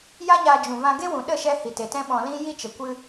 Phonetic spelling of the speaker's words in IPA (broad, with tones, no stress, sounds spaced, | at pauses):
j a˦ ɲ aː˧ d͡ʒ ũ˨ v ã˧ ɡ e˦ w ũ˨ ɗ ə˦˨ ʃ ɛ˧ h i˨ t e˨ t ɛ̃˦ ɓ ɔ̃˧ l ĩ˦ j i˦ t͡ʃ ə˨ kʷ ɨ˧